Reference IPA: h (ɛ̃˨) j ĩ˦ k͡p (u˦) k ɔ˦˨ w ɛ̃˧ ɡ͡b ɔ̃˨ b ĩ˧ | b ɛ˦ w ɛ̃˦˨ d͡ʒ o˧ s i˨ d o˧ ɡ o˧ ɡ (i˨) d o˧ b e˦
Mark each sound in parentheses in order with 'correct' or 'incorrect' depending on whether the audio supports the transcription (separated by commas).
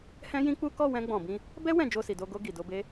incorrect, correct, correct